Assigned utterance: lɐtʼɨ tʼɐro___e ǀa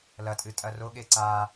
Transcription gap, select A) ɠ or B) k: A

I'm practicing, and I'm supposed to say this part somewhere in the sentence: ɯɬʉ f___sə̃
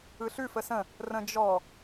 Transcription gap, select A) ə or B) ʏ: A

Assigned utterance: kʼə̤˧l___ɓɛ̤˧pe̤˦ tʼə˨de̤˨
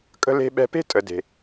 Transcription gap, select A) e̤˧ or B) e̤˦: A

